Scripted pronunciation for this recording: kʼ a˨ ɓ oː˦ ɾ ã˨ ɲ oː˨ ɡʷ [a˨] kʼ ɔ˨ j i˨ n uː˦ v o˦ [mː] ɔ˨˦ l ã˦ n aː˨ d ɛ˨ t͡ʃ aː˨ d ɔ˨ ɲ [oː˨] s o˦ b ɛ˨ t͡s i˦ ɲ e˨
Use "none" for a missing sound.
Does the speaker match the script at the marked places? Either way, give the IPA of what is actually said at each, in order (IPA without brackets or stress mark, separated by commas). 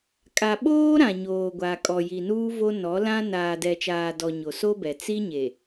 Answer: a˨, n, o˨